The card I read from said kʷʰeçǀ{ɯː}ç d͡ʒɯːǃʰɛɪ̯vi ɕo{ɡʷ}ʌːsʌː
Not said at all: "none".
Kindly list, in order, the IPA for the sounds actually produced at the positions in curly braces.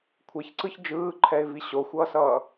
ɯ, xʷ

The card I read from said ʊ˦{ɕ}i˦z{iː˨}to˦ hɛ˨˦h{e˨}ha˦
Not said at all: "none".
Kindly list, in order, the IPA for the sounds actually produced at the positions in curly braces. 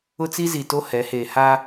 t͡s, i˨, e˨

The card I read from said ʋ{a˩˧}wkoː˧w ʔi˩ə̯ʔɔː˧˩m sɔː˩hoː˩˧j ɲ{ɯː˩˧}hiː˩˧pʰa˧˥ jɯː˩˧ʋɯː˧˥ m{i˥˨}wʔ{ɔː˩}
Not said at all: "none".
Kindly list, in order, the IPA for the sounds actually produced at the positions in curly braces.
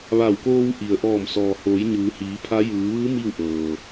a˧˩, ɯː˩˧, i˥˨, ɤː˩

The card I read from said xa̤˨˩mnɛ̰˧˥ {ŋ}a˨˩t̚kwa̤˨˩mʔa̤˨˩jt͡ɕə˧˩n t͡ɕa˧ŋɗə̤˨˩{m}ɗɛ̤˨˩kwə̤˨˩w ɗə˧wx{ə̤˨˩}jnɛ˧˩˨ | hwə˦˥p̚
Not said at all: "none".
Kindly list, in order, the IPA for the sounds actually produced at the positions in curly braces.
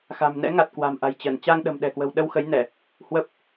ŋ, m, ə˨˦

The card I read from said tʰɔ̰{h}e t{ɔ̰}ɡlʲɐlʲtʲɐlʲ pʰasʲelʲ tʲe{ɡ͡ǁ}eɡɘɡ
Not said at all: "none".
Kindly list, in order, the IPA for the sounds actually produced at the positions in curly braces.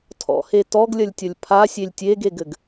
h, ɔ, ɡ

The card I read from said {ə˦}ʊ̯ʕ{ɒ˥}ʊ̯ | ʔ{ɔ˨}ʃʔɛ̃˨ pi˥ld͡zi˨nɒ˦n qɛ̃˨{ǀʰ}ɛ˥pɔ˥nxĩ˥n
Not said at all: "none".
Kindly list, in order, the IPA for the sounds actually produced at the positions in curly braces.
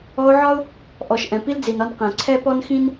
ɔ˦, ɒ˥, ɔ˨, ǀʰ

